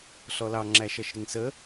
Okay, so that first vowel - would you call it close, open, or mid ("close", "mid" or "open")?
mid